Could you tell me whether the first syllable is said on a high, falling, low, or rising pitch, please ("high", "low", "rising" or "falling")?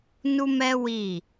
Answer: high